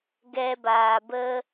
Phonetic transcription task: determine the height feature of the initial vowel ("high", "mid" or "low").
mid